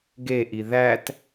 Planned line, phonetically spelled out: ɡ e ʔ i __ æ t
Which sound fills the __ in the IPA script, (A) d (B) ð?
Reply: B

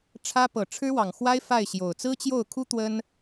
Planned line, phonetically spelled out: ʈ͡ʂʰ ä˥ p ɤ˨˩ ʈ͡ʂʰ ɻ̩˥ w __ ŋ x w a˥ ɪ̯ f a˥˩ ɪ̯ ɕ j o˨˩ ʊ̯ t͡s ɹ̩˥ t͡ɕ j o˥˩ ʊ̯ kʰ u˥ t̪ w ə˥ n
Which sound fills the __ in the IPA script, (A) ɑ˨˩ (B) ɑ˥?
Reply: A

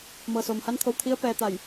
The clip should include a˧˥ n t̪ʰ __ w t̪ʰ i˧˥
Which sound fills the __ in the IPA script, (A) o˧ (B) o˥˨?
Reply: A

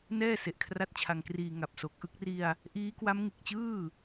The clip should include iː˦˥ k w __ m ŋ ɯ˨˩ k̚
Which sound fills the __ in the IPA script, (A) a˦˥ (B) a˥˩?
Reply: A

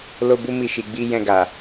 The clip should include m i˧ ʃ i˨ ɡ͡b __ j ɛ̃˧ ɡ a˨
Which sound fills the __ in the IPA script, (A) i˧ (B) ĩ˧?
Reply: A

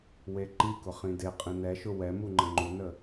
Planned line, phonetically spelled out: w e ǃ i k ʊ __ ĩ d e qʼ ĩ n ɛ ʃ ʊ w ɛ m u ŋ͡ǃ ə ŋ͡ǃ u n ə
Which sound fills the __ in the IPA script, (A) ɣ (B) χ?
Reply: B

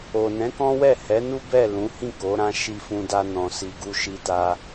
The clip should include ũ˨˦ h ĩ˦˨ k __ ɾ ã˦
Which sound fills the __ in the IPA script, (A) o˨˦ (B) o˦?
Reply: A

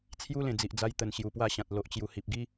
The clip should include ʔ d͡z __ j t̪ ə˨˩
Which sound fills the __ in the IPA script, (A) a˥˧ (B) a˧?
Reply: B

